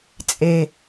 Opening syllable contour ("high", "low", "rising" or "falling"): low